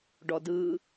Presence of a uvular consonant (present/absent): absent